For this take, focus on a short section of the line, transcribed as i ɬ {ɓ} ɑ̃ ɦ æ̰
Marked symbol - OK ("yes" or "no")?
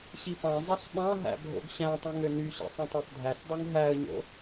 yes